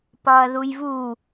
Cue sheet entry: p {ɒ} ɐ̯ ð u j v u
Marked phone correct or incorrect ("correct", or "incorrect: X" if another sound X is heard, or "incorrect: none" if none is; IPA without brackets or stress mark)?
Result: correct